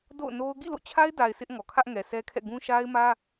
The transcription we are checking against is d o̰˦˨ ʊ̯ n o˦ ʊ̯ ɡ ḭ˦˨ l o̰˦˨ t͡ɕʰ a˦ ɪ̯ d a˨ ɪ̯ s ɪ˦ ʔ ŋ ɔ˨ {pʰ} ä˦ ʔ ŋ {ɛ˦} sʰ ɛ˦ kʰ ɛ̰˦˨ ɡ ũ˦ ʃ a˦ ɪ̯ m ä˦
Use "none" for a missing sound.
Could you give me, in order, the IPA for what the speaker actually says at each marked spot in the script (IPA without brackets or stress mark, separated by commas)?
kʰ, ɛ˨